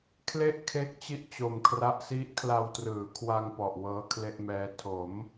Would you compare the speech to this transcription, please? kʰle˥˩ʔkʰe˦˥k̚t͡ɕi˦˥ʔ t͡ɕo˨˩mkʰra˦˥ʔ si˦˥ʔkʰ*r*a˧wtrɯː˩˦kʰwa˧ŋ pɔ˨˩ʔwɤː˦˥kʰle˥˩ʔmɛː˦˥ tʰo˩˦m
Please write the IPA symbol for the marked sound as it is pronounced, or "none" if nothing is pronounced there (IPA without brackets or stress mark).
l